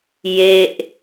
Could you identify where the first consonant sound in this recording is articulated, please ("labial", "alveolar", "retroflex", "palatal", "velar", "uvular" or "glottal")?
palatal